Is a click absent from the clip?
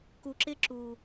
no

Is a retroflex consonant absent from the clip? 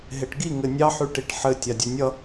no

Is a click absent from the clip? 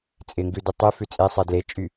yes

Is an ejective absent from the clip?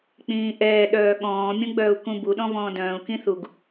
yes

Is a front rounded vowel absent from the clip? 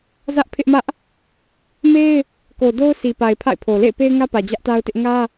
yes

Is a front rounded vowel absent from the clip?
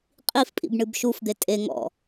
yes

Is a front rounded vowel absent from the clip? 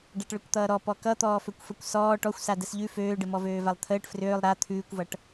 no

